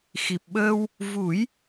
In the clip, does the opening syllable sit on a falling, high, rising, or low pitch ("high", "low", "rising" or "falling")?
low